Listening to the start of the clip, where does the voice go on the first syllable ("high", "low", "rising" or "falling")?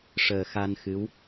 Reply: low